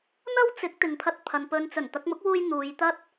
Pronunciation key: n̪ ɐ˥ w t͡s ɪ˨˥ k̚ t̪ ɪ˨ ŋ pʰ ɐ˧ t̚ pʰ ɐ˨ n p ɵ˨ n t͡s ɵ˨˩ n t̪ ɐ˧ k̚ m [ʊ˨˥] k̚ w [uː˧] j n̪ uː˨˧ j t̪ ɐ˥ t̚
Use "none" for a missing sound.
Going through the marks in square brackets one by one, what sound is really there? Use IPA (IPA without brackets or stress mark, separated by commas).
ʊ˨˥, uː˧